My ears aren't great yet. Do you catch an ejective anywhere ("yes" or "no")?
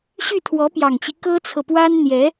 no